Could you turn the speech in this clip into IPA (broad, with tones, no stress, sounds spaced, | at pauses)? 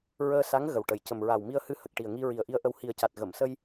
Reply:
ɹ əː˧ s a˧˥ ŋ ɣ ə˨˩ w ʈ ə˨˩ j c ə˨˩ m ɹ a˨˩ w m i˧ ə̯ h ɨ˧ h ə˨˩ k̚ ʈ i˨˩ ə̯ ŋ i˧ ɹ i˨˩ ə̯ ʔ i˧ ə̯ ʔ ə˧ w h i˨˩ ə̯ c a˨˩ t̚ ɣ ə˨˩˨ m s ə˧ j